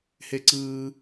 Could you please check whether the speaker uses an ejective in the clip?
no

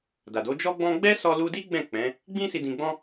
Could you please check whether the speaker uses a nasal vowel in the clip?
yes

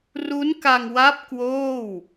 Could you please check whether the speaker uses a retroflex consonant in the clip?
no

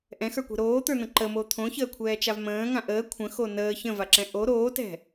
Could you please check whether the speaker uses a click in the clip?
yes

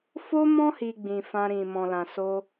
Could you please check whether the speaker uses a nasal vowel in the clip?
yes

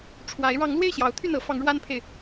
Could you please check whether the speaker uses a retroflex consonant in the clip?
yes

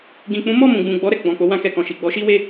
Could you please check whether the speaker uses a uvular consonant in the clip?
no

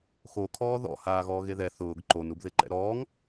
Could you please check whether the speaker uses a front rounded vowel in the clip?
no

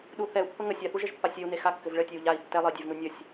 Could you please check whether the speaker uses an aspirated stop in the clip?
no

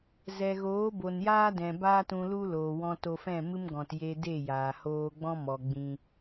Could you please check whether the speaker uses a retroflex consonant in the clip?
no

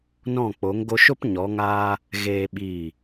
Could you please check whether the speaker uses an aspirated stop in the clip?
no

